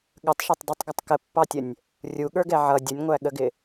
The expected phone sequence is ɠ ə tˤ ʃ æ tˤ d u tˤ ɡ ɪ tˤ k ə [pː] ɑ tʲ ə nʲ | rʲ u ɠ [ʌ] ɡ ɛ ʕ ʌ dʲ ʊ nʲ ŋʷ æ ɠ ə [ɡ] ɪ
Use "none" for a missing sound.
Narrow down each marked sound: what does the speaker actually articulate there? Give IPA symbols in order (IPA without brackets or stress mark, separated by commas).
pː, ə˞, ɡ